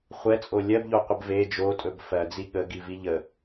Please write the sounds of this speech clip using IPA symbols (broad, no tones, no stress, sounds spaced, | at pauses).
χʷ ɛ t͡sʼ o lʲ ɜ b ʎ o qʷ ə b v e d͡ʒ o tʼ ɵ b f ɜ d͡z i ɠ ə ɡ i v i ʎ ə